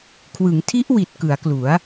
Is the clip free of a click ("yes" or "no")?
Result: yes